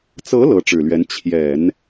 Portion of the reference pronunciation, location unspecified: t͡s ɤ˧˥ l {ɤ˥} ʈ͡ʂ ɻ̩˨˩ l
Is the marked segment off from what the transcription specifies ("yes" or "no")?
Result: yes